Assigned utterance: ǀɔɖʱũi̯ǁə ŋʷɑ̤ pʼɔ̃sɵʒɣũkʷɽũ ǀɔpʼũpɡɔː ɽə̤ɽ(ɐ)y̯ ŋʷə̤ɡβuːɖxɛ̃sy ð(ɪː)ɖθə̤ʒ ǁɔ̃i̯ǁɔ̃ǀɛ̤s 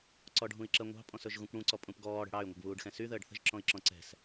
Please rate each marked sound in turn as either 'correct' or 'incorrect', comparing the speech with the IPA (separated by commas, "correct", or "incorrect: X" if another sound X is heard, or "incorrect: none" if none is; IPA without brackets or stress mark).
incorrect: ɑ, incorrect: əː